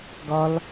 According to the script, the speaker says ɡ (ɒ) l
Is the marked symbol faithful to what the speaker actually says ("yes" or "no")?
yes